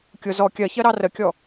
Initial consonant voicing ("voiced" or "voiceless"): voiceless